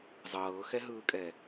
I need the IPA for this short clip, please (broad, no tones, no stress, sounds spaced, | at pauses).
zˤ ɤː x ɛ ɦ ɯː kʼ ɛ